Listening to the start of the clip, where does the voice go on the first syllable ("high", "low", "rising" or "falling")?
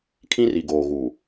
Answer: high